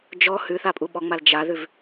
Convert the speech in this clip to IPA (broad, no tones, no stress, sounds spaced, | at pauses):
d͡ʒ ɔ h ʉ θ a pʼ u ɓ ɔ ŋ͡m a l d͡ʒ a ð ʉ v